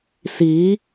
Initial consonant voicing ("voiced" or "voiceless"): voiceless